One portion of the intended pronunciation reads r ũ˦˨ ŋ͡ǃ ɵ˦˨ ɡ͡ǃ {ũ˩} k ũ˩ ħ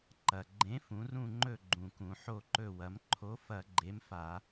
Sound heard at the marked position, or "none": ũ˩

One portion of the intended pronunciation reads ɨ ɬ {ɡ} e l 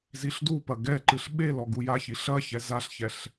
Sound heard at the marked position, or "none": ɓ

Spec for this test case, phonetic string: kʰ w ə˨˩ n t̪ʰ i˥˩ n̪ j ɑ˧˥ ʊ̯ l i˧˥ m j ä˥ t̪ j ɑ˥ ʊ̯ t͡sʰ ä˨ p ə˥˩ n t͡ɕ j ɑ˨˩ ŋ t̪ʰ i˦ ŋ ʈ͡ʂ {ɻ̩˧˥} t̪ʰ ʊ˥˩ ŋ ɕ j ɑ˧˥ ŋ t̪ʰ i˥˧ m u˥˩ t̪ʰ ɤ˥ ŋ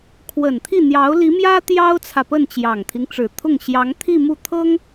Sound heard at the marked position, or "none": ɻ̩˨˩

